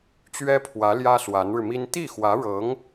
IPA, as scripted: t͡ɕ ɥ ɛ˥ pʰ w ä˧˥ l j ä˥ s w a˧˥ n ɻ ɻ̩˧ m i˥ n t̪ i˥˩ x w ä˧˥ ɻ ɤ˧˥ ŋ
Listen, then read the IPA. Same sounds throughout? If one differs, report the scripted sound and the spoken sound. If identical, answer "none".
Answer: none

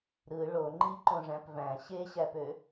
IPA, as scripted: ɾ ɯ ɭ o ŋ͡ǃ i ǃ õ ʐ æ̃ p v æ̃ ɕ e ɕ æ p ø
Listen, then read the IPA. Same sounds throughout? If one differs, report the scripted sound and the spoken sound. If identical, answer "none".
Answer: none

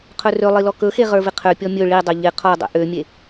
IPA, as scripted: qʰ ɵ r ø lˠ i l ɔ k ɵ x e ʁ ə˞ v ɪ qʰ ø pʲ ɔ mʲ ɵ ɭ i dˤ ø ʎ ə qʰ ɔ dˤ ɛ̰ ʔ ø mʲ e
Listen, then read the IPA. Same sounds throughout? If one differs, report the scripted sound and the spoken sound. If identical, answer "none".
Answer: ə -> ɪ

